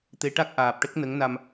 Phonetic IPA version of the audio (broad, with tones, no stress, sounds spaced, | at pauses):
t̪ e˧˥ ʈ a˦˥ k̚ ʔ aː˨˩ p̚ ʈ ə˦˥ k̚ n ə˧˥ ŋ n a˧ m